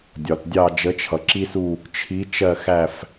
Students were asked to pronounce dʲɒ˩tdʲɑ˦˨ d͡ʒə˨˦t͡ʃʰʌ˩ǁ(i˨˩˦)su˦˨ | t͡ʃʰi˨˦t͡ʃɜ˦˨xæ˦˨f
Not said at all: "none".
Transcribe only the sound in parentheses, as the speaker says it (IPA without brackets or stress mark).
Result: i˦